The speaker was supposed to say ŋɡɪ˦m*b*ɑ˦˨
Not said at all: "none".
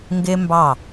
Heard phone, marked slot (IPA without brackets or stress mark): b